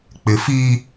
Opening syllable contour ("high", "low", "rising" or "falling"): low